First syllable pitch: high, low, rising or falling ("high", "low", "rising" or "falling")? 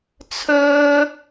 high